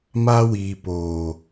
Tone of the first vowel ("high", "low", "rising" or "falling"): high